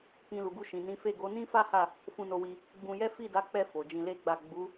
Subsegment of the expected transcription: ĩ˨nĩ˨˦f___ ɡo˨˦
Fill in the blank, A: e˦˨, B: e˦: A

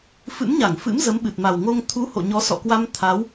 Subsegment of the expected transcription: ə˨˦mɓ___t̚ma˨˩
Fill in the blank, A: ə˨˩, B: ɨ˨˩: B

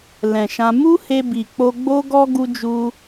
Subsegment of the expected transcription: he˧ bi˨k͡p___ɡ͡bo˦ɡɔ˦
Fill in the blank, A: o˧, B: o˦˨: A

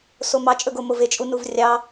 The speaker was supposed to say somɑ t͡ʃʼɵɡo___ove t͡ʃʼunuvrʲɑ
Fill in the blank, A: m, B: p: A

